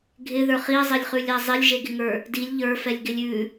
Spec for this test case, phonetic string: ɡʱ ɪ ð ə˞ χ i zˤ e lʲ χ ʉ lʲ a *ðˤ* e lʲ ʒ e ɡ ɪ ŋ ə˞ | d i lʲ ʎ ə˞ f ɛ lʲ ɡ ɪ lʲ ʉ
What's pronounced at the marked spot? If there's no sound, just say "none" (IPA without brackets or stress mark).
zˤ